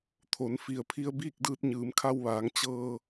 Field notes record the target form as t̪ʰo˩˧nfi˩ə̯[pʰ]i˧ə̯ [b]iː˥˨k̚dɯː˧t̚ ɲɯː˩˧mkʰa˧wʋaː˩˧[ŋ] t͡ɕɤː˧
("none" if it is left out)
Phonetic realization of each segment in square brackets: pʰ, b, ŋ

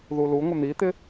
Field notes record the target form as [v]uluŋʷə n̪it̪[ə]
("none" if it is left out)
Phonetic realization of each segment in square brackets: ð, ɪ

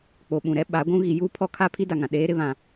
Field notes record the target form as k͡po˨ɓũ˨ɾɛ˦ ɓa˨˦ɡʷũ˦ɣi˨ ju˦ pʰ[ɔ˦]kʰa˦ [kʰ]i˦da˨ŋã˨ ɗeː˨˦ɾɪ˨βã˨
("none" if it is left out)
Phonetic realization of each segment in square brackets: ɔ˦, pʰ

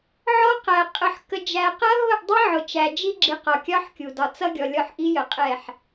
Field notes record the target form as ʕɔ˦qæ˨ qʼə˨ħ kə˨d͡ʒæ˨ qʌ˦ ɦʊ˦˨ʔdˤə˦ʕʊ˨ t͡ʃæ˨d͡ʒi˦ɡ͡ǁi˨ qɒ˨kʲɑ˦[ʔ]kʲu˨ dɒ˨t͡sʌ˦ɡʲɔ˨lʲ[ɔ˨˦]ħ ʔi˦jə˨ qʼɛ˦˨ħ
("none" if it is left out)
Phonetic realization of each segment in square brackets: ħ, ɔ˦˨

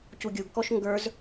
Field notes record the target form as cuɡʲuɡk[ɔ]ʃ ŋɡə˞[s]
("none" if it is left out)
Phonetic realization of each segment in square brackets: ɔ, z

